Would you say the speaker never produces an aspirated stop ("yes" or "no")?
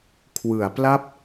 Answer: no